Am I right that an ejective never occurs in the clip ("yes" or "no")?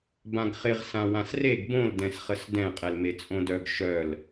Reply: no